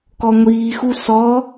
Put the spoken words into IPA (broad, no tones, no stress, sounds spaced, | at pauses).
k ɔ ŋʷ iː x u s ɔ